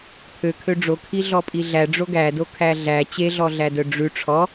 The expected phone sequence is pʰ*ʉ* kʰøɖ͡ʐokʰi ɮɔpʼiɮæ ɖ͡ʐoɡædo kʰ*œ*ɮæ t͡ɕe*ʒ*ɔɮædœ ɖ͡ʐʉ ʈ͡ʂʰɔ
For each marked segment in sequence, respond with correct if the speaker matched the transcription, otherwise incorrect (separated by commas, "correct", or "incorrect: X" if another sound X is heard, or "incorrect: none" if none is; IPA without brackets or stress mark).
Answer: incorrect: ø, incorrect: æ, incorrect: ɮ